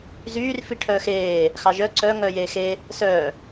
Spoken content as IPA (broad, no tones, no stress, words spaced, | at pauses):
zyːr fiʈʰœːxeː | xɑʒœ ǀœ ŋœːjeːxe | sœː